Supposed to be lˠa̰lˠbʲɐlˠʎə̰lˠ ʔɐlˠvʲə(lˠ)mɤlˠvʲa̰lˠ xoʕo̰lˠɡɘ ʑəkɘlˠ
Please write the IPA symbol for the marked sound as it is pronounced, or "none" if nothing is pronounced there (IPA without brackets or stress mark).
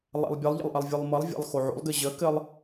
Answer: lˠ